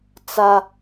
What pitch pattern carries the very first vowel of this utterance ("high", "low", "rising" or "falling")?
high